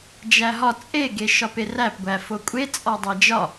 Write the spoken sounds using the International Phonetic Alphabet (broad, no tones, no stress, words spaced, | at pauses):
d͡ʒæɦɒ t͡sʼe ɡeʃɒperæp ɡʷæfokʷʼe t͡sʼɒdˤæd͡ʒɒ